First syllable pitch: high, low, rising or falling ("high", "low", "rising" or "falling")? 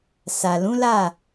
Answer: low